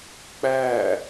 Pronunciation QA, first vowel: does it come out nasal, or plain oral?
oral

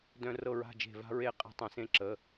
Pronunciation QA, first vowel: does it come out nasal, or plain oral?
nasal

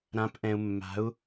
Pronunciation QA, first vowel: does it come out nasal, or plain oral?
nasal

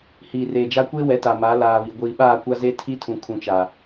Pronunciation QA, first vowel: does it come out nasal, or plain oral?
oral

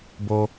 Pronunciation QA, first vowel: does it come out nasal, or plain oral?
oral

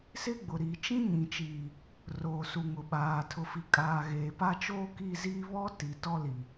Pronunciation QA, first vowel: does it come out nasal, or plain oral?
oral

